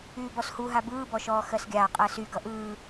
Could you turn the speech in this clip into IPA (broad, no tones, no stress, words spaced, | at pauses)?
yːbɔshuɦa bɯːbɔʃɔː xɜsɡʲaː qʼɜsy ɡʌʔɯː